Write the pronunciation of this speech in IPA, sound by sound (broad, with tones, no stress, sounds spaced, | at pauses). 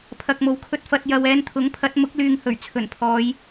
pʰ ɐ˨ k̚ m o˨˥ w kʰ ɵ˧ t̚ f ɐ˧ t̚ j ɐ˧ w ɛː˧ n t̪ʰ ʊ˨˥ ŋ pʰ ɐ˨˥ t̚ m ʊ˨˥ k̚ l yː˨ ŋ h ɵ˨˩ ɥ t͡sʰ ɵ˨˩ n pʰ ɔː˨˧ j